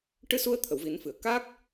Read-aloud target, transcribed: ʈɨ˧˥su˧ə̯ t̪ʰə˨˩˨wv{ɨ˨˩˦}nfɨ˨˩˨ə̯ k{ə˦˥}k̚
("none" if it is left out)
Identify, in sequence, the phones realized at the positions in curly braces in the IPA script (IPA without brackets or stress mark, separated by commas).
i˨˩˦, a˦˥